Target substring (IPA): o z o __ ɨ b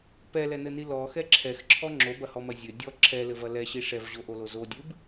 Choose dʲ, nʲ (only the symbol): dʲ